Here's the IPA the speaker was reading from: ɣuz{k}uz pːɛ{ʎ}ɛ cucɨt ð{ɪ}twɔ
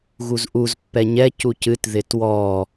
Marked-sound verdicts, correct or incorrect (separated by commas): incorrect, incorrect, correct